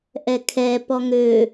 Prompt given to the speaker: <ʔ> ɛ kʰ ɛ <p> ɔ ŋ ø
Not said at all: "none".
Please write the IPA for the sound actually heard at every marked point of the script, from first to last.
ʔ, p

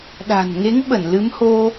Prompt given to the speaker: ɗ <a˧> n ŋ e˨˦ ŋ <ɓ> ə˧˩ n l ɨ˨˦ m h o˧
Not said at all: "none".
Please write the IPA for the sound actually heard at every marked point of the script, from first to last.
a̤˨˩, ɓ

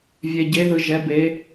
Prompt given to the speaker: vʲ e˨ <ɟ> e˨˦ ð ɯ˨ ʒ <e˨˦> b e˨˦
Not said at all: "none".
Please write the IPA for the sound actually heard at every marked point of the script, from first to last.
ɟ, ɛ˨˦

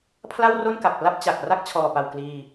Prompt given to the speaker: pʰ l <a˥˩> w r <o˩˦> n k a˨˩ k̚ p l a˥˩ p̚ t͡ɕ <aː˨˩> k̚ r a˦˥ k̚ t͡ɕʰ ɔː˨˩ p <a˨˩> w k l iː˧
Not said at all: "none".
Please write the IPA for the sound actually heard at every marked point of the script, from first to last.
a˥˩, o˥˩, a˨˩, a˨˩

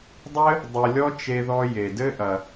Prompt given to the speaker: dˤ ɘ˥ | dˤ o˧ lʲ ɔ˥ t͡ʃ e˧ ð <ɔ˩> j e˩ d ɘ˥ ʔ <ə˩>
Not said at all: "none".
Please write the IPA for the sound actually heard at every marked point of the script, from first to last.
ɔ˧, ɐ˩

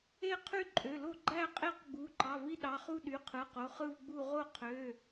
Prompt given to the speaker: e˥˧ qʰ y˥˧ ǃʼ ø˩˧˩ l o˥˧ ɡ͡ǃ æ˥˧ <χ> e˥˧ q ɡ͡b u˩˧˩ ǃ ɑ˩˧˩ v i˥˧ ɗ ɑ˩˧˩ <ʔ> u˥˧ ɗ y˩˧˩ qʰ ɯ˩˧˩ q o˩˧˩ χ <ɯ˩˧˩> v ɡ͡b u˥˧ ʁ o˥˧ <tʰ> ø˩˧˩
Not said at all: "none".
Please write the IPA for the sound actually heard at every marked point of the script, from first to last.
qʼ, χ, ɯ˥˧, qʰ

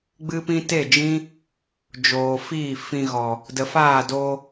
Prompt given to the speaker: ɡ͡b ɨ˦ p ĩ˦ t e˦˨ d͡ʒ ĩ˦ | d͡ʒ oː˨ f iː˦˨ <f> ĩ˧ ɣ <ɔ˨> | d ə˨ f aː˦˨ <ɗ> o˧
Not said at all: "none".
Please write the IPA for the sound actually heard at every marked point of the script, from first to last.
f, ɔ˨, d

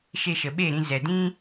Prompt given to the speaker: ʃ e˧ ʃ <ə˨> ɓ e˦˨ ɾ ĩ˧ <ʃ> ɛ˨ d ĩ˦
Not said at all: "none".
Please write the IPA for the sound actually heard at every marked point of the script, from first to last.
ə˨, z

